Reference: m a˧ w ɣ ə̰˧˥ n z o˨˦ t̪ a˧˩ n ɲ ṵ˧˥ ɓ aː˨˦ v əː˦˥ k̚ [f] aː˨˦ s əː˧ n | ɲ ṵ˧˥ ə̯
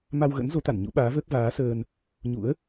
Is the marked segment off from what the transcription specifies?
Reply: yes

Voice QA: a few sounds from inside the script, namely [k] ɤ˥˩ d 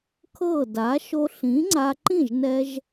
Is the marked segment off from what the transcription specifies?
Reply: yes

